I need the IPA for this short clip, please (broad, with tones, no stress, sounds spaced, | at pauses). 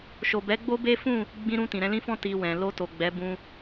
ʃ o˨ b ɛ˨˦ ɡ͡b o˦ b e˦ f ũ˦˨ | ɡ͡b ĩ˧ ɾ ũ˧ t ĩ˨ ɾ ɛ̃˨˦ l ĩ˦ f ɔ̃˦ t i˧ w ɛ̃˨ l o˧ t o˨ ɡ͡b ɛ˨˦ b ũ˧